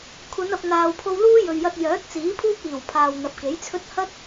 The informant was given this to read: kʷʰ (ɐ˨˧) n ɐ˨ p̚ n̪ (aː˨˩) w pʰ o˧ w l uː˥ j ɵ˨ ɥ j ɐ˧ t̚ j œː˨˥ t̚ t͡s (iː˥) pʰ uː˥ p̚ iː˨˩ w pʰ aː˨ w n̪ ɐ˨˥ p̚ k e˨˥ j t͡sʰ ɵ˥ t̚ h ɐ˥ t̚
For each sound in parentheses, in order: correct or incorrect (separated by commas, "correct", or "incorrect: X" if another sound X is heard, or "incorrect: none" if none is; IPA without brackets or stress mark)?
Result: correct, incorrect: aː˨, incorrect: iː˨˥